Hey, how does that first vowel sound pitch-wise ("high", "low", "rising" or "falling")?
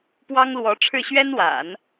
high